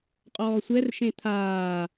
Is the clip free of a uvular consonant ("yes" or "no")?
no